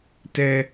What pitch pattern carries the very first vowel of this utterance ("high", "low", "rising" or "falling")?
low